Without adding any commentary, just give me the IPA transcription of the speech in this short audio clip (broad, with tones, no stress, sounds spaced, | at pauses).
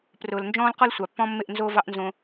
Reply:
p r ʊː˨ l n d͡ʒ ɔ̃ː˦ l q ɔ˦ l sʷ ɑ˨ pː ɔ̃˦ mː ɪ˦˨ ʔ n z oː˦ v ɑ˦ ʔ n z õ˦